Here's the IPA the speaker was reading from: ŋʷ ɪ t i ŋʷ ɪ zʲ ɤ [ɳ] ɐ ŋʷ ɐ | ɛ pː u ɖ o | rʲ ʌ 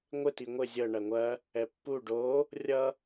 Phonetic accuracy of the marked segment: correct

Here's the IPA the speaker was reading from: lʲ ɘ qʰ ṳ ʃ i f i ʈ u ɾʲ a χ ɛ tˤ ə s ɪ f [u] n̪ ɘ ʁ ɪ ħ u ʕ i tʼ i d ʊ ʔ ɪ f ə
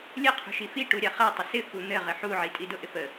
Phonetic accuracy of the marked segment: correct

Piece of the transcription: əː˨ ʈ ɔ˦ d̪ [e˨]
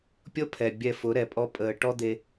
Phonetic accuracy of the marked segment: incorrect: e˧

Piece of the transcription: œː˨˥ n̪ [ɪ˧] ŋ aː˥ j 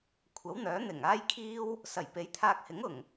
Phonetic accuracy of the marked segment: incorrect: ɪ˨˩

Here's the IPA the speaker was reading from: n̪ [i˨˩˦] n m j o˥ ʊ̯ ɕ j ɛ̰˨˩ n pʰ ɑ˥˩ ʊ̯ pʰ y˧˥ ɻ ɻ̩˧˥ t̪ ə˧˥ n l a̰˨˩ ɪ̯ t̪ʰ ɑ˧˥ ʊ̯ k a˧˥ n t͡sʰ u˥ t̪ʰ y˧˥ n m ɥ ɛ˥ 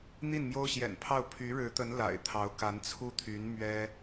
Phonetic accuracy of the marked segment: incorrect: i˥˩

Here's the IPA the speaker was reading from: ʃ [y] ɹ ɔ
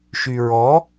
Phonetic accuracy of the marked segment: correct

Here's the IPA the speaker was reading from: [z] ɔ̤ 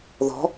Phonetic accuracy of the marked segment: incorrect: ð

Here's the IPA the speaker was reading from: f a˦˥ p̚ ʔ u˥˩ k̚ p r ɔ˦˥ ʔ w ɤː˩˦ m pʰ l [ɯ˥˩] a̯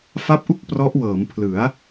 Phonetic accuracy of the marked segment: incorrect: ɯ˩˦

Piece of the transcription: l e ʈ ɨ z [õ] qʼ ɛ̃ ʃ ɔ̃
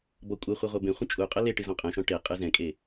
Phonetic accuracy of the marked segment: incorrect: ɔ̃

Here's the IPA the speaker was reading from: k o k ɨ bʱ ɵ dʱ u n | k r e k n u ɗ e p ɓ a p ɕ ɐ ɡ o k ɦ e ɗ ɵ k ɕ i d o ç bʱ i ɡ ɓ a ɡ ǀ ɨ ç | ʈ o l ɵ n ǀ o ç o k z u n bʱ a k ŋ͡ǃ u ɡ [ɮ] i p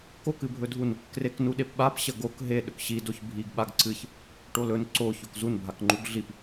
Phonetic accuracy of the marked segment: correct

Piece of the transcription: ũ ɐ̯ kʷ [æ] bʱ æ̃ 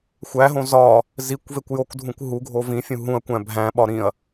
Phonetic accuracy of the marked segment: incorrect: æ̃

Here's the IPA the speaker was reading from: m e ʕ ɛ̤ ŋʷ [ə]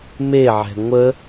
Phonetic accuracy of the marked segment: correct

